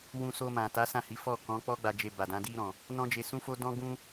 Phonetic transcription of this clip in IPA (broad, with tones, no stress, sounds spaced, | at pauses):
w ũ˧ s o˧ m ã˨ t a˨˦ s ã˦˨ h i˨˦ f ɔ˦˨ k ɔ̃˨˦ k͡p ɔ˦ ɡ͡b a˧ d͡ʒ e˧ b a˨ d ã˨˦ d i˧ ɾ ɔ̃˨ | n ɔ̃˦ d͡ʒ e˧ s ũ˦ f o˦ d ɔ̃˦ ɡ ũ˦